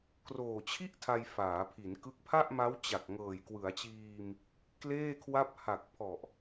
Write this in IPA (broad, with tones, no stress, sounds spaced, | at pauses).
k r oː˨˩ t͡ɕʰ i˥˩ ʔ tʰ a˧ j f aː˩˦ pʰ i˩˦ n k ɯ˦˥ k̚ pʰ a˥˩ ʔ m a˦˥ w t͡ɕ a˨˩ k̚ ŋ ɤː˨˩ j k w ɯ˩˦ a̯ t͡ɕ iː˧ m | k l eː˥˩ kʰ w a˥˩ p̚ h a˨˩ k̚ pʰ ɔ˨˩ ʔ